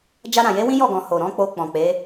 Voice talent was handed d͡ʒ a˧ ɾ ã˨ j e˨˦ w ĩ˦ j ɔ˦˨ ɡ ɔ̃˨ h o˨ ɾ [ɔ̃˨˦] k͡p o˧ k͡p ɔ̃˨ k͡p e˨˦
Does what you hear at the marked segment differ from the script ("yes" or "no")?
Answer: no